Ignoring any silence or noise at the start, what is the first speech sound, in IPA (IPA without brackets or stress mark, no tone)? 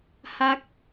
h